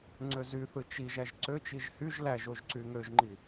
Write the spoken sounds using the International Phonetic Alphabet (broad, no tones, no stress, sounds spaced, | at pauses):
ŋ͡ǀ ø z y θ ɯ t͡ʃ i ʒ æ ʒ ǀ ø t͡ʃ i ʒ h y ʒ l æ ʒ o ʒ ǀ y ŋ ø ʒ ŋ͡ǃ i